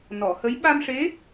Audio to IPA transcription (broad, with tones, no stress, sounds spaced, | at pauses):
n ɔ˨˩˨ h ə˧˥ j ɓ a˧ m ʂ e˧˥